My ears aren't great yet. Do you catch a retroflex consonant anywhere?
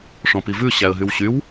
yes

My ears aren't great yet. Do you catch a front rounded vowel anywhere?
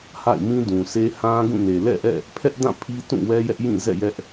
no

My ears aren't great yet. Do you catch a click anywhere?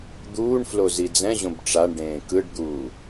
no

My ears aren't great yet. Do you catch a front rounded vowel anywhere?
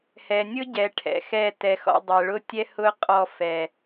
no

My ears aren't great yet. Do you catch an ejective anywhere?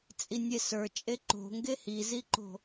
yes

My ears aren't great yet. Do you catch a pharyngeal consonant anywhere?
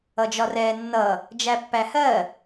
no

